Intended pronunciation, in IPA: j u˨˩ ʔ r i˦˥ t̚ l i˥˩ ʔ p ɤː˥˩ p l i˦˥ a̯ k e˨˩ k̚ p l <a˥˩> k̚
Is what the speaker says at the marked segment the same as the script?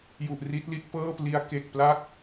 yes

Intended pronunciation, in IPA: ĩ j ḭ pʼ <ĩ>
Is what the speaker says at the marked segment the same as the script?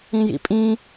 yes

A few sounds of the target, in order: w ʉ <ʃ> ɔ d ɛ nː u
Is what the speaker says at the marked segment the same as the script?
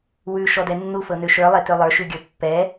yes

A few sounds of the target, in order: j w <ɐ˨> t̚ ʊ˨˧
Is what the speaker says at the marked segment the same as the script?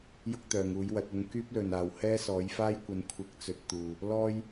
no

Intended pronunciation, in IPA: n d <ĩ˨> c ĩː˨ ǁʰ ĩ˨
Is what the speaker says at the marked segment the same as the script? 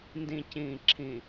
yes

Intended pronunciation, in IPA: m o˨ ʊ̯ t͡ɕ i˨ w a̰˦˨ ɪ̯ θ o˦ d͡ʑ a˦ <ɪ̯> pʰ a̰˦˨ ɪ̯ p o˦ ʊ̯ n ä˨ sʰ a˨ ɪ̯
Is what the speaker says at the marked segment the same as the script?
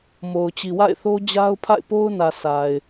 no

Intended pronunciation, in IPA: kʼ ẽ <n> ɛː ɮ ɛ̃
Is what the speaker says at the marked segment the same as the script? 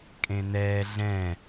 yes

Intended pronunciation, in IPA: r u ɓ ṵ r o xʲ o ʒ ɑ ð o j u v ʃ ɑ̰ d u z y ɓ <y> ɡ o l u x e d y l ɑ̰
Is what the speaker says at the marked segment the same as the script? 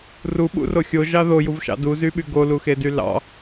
yes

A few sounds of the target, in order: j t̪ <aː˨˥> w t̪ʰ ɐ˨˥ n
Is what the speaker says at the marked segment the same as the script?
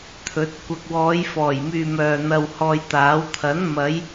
yes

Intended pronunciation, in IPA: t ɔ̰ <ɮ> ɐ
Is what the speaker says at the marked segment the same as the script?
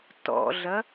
yes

